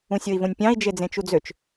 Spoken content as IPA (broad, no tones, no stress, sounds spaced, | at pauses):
ũ sʲ o i̯ v õ nʲ pʲ ɑ̃ i̯ d͡ʒ e d͡z ẽ t͡ʃ u d͡z ø t͡ʃ